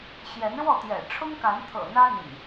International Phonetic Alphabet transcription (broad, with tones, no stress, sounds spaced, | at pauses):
ɕ j ɛ˨˦ n ɻ w ɔ˥˨ t̪ j ɛ̰˨˩ ʈ͡ʂʰ ʊ˦ ŋ k a˨˦ n t̪ʰ ɤ̰˨˩ n̪ ä˦ n̪ ḭ˨˩ ŋ